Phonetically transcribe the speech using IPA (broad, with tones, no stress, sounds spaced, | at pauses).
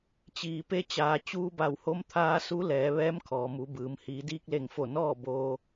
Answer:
t͡ɕ iː˩ p e˧˥ t͡ɕ aː˩˧ t͡ɕ uː˧ b a˧˩ w h o˧˥ m t̪ʰ aː˧ s u˧˥ l ɛː˩˧ ʋ ɛː˧˥ m kʰ ɔː˩ m u˩˧ b ɯː˩ m h iː˩˧ d iː˧ k̚ l e˧˩ ŋ f o˧˩ n ɔː˥˨ b oː˧